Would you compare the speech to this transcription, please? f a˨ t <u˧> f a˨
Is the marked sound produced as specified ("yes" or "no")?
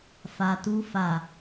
yes